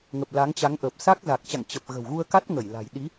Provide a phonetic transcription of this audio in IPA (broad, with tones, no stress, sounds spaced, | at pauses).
ŋ ə˨˩ p̚ l a˨˦ ŋ t͡ɕ a˨˦ ŋ ʔ ə˨˩ p̚ s a˦˥ k̚ z a˨˩ k̚ t͡ɕ a̰˧˨ ŋ t͡ɕ ə˨˩ p̚ ɣ ə̤˨˩ w ɣ u˧ ə̯ k a˦˥ t̚ ŋ ə˧˩ j l a̤˨˩ j ɗ i˨˦